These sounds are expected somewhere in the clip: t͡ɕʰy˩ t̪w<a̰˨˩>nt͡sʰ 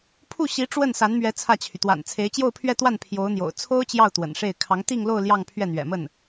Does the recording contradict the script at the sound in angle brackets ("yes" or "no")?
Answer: no